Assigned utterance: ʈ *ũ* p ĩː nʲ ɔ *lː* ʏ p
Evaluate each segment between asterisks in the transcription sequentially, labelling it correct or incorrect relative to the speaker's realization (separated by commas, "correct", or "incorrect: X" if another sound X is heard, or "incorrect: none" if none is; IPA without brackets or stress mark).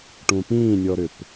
correct, incorrect: ɾ